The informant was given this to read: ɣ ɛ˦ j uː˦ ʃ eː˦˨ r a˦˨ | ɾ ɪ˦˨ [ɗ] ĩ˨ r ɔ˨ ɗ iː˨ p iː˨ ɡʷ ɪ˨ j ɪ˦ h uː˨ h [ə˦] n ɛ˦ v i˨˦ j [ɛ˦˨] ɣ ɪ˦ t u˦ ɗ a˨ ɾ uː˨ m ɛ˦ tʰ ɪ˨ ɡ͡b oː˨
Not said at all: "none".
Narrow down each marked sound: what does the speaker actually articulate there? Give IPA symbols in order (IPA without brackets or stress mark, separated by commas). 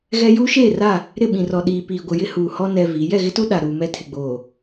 ɓ, ɔ˦, ɛ˦˨